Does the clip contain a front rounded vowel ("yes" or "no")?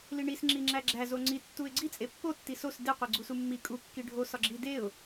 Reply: no